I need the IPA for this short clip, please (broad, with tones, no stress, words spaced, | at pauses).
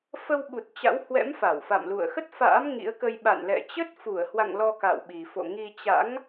fə˧wɓu˨˩t̚ t͡ɕa̰˧˥whwɛ̰˧˥m fa˧˩wfa̰˧˨mlṵ˧˨ə̯ xə˦˥t̚fa̰ː˧˥m ŋḭ˧˥ə̯kə˧j ɓa̰˧˨nlɛ̰˧˨t͡ɕə˦˥t̚ fu˧˩ə̯hwa̰˧˨ŋ lɔ˧ka̰˧˨wɓi˨˩fo̰˧˨ ŋi˧t͡ɕa̰˧˥ŋ